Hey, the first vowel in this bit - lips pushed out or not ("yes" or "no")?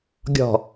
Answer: yes